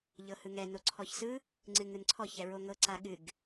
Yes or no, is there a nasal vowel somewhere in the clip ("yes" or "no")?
no